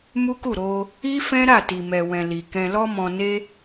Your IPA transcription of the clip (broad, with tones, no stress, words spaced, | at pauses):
mu˦ku˦˨ɾo˧ | i˦ fɛ̃˦ɾa˦˨ti˨ mɛ˨wɛ̃˨ li˨ kɛ̃˧lɔ˦mɔ̃˧ne˦